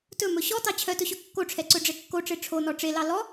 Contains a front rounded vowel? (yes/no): yes